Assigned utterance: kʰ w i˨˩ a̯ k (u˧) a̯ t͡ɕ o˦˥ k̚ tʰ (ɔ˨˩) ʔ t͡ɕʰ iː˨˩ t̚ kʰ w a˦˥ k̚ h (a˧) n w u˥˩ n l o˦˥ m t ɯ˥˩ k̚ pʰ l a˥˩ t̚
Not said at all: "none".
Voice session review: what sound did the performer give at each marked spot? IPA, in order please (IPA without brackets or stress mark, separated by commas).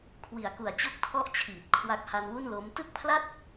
u˨˩, ɔ˦˥, a˧